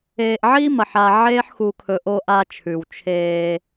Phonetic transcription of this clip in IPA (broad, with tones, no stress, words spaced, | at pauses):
eː˨ʔʕi˦mɐ˨ħa˨ ʕeː˦ħxu˨kʰɵ˨ ʔo˦ʔa˦t͡ʃʰʉ˨w t͡ʃʰeː˦